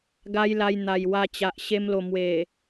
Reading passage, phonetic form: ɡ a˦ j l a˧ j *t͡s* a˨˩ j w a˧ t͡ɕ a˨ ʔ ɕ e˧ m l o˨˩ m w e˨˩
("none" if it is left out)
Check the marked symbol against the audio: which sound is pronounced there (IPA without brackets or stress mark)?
n̪